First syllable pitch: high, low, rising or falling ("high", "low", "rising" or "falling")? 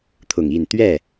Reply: low